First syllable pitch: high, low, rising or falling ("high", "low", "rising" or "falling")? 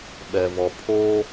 low